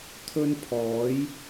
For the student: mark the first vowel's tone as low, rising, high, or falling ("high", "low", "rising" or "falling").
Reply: high